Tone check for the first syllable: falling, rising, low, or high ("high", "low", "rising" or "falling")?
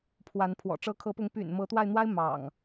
rising